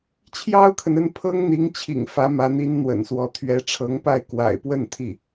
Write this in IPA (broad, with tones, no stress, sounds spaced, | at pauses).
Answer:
t͡ɕʰ j ɑ˥ ʊ̯ kʰ ə˨ n ə˥˩ n pʰ ɤ˥ ŋ n̪ i˧˥ ŋ t͡ɕʰ ḭ˨˩ ŋ f ä˧˥ m ä˧˥ n̪ i˧˥ n n̪ w ə̰˨˩ n s w ɔ˧˥ t̪ʰ ɥ ɛ˧˥ ʈ͡ʂʰ ɤ˧˥ ŋ p a˥˩ ɪ̯ k w a̰˨˩ ɪ̯ p w ə˥˧ n t̪ʰ i˥˩